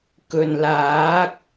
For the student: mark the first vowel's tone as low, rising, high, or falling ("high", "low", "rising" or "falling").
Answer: low